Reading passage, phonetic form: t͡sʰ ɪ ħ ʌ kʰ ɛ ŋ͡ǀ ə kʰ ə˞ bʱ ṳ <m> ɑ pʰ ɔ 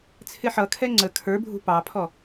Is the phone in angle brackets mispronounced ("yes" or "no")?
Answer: yes